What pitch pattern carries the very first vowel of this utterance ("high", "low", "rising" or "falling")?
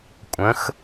rising